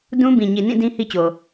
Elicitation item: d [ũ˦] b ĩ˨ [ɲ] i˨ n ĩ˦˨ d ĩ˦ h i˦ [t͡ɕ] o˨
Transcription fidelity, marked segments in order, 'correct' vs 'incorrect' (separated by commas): correct, correct, correct